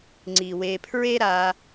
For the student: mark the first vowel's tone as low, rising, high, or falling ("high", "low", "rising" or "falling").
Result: low